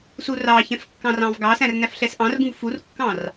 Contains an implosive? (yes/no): no